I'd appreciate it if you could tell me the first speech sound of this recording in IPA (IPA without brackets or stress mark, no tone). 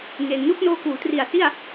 ŋ